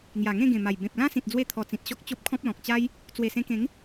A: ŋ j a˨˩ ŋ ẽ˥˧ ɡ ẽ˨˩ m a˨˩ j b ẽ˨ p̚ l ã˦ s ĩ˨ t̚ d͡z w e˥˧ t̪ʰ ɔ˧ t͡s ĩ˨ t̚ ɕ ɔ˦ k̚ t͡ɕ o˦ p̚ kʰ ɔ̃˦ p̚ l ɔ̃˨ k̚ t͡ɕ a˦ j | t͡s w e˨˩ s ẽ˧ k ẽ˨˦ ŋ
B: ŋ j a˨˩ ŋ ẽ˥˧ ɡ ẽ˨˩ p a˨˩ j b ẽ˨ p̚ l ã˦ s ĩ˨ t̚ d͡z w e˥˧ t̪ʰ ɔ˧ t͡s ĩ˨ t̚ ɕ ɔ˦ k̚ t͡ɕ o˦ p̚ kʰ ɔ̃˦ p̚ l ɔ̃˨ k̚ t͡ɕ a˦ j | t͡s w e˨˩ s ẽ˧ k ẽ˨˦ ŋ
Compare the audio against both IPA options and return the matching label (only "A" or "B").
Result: A